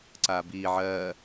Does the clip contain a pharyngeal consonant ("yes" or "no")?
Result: yes